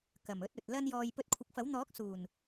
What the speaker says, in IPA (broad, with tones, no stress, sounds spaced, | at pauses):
k ɐ˨˩ m ɵ˧ t̚ ɵ˨ t̚ l ɐ˧ n j ɔː˨ j p ɵ˧ t̚ kʷʰ ɪ˨˥ k̚ f ɐ˨˥ w n̪ ɔː˨˥ k̚ s uː˨˩ n